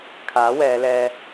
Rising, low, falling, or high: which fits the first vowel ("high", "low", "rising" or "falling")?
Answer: rising